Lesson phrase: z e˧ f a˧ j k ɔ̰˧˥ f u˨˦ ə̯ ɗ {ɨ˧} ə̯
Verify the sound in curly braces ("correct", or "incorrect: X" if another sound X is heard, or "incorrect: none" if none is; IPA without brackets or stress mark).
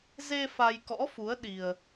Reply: incorrect: i˧